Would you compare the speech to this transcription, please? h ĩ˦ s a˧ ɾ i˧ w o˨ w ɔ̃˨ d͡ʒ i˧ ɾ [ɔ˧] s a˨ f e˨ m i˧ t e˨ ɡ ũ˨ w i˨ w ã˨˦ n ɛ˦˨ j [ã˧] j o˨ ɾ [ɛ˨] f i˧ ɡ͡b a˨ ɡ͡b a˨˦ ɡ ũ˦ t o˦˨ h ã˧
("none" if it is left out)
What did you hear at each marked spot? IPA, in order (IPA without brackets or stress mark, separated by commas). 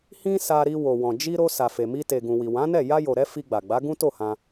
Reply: o˧, a˧, ɛ˧